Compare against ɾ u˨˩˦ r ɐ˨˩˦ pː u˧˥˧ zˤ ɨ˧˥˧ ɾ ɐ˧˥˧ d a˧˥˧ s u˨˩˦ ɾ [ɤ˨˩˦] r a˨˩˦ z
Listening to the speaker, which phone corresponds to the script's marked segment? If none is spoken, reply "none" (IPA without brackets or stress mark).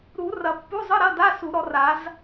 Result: ɔ˨˩˦